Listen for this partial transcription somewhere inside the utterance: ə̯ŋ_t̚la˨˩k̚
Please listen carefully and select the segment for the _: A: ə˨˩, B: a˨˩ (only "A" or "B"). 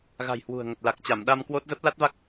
A